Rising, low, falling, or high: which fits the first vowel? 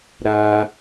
high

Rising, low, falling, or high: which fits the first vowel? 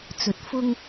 low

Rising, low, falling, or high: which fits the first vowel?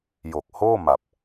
low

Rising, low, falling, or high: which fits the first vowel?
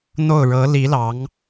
falling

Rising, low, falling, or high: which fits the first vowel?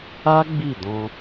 high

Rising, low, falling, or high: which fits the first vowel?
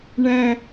high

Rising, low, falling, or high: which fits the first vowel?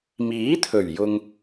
rising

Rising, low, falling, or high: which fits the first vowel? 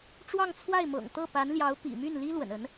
falling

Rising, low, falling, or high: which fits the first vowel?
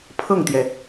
falling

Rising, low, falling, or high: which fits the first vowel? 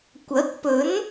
rising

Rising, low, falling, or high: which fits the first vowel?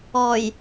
low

